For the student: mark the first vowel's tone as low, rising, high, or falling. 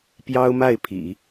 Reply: high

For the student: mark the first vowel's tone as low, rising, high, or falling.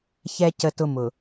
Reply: high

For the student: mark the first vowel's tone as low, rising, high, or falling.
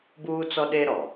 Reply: high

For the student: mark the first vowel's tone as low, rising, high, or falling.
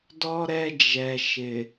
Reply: high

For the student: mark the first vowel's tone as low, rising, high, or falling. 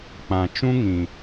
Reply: low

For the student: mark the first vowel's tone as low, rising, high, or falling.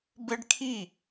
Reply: high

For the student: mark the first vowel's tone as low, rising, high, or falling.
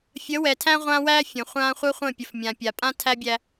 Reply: rising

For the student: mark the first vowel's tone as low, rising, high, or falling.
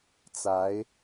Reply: rising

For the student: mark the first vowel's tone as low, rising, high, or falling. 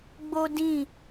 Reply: high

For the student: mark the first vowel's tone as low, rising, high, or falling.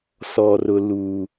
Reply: low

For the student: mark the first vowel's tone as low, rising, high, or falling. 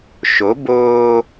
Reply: rising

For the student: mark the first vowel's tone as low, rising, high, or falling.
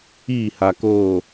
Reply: falling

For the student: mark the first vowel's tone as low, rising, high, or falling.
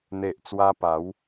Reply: low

